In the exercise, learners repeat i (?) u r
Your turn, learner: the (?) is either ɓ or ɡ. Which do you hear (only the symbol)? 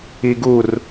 ɡ